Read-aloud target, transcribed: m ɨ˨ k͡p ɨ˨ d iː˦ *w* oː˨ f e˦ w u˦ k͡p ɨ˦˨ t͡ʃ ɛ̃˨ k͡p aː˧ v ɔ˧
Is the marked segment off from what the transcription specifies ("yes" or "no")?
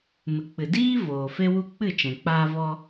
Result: yes